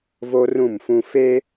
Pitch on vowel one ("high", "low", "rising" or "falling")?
high